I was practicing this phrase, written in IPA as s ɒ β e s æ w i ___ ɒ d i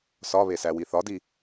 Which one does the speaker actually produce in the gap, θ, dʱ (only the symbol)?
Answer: θ